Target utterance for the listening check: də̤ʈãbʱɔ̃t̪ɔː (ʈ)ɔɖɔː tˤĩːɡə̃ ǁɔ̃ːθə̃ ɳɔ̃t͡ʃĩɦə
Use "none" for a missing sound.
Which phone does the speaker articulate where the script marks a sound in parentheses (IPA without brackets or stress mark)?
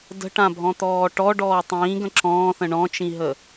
ʈ